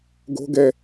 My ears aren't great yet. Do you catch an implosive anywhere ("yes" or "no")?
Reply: no